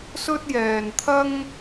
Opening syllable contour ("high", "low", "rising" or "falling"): high